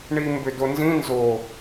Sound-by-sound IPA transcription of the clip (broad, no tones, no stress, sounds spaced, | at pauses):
ɳ i m b ʏ d o n z ĩ n z o